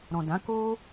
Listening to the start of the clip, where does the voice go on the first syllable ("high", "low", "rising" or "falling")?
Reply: low